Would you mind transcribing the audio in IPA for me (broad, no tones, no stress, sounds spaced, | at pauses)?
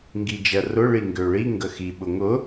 ŋ ɡ i d͡ʒ ɜ r ʊ ɭ i ŋ ɡ ø ɭ i ŋ ɡ ə x i ɓ ʊ ŋ ʊ